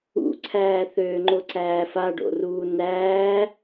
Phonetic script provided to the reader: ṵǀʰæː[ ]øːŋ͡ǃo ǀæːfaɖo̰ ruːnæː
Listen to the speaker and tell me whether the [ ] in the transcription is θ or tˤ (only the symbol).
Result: θ